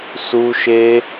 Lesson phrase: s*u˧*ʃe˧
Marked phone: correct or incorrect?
correct